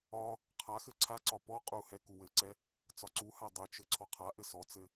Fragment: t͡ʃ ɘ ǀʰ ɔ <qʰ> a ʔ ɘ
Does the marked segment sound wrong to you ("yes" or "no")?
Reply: no